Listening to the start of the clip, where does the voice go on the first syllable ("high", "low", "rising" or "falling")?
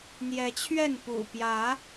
rising